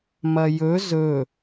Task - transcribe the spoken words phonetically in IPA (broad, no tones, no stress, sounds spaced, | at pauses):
m ɐ j ɵ z ɵ